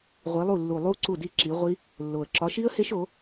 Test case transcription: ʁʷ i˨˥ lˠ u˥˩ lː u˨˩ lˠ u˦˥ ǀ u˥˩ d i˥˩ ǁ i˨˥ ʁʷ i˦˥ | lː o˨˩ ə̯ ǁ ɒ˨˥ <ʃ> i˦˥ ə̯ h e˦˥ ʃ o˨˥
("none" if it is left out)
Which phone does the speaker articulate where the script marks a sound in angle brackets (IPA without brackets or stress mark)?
ʃ